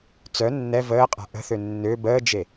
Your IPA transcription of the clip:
t͡sœ nːɛ vəːqʼa̤ ʔə̤θø nːø bəːd͡ʒe

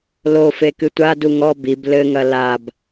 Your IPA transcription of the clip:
lofe kɨtʷadu ŋɔ bib lɘŋɐ lab

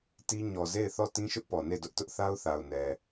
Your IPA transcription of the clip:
ti˦ ɲɔ˨ze˦˨ɪ̯θɔ˦˨ tĩ˦ʃʊ˦ʔpɔ˨ ne˦˨dʊ˦ʔtʊ˦ʔ θa˦ʊ̯θa˨ʊ̯nɛ˨

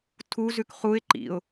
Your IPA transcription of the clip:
tʰuzʉk χuɪ̯ ǃḭʊ̯

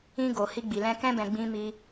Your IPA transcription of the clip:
ĩ˧ɡo˨ hi˧ɡ͡bi˨lɛ̃˧ kɛ̃˧bɛ̃˨ ɡ͡bĩ˧mi˧

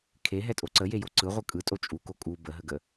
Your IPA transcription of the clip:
kʰeɦɛtʼo ǀəjejo ǀɯʁʷɯ kʼɯtʼo t͡ʃʼuko kʼu bəɦəɡə

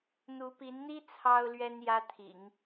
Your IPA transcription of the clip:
n̪u˧˥pi˧˥nn̪i˥ t͡sʰɑ˥ʊ̯lɥɛ˥n jä˥t̪ʰḭ˨˩˦ŋ

